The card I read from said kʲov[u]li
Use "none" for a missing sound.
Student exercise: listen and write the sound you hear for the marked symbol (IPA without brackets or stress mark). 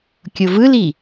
ɯ